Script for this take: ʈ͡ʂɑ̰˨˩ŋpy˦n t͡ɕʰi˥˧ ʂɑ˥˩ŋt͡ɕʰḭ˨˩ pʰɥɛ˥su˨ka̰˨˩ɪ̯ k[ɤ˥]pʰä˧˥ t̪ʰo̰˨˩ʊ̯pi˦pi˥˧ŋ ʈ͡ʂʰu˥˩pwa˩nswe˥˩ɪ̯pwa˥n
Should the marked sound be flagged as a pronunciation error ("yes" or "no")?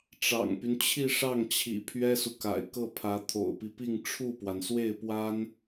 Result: yes